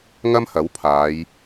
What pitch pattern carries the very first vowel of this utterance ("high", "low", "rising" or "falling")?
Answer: high